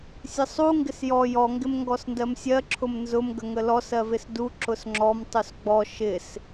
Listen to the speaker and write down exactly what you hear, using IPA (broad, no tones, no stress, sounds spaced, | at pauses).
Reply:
sʲ ə sˤ u ŋ ɡ ɪ s j ɔ j ɔ ŋ ɡ ɪ m ŋ ɡ ɔ s n d ɜ m sʲ ɜ ǁʰ ʊ m n z ʊ m ɡ ə ŋ ə l ɔ s ɜ v ɪ s d u ǁ ʊ s ŋ͡ǁ ɔ m tˤ u s ɡ͡b ɔ ʃ ɪ s